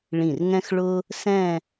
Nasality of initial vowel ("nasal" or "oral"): nasal